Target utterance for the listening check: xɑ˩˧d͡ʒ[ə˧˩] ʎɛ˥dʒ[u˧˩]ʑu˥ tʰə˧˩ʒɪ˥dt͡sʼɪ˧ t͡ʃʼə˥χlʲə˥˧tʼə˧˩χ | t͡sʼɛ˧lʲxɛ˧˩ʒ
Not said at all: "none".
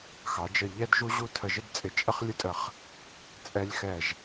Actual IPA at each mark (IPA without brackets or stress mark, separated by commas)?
ə˧˩, u˥